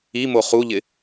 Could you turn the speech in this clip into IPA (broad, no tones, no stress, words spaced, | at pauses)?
imo χuʎɪ